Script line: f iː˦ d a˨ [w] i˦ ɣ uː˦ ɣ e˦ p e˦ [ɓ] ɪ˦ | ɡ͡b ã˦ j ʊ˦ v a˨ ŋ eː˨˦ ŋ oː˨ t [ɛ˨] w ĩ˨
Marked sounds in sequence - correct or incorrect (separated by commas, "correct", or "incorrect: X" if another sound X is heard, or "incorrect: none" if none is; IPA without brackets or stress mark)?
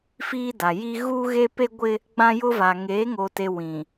incorrect: j, incorrect: ɡʷ, incorrect: e˨